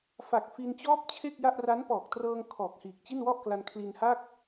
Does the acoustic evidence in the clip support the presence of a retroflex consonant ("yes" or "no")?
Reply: no